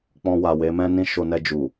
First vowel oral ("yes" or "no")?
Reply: no